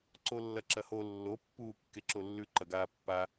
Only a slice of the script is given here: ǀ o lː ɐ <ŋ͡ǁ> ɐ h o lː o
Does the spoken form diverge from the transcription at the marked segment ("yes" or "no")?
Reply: yes